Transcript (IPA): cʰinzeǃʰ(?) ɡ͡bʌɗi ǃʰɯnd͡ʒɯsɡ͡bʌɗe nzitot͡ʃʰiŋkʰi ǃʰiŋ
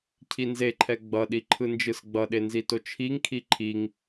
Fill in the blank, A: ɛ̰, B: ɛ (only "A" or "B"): B